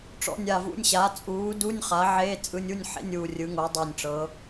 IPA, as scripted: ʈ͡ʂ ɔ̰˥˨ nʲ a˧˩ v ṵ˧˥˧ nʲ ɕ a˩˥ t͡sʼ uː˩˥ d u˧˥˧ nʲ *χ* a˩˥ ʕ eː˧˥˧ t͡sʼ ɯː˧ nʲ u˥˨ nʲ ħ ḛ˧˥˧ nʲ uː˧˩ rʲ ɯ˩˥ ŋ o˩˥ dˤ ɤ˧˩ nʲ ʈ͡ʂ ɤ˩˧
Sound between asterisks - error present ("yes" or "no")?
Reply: no